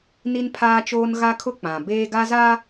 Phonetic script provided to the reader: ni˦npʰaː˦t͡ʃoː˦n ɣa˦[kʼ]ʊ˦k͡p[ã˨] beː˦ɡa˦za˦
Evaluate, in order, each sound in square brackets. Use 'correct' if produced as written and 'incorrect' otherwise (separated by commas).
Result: incorrect, correct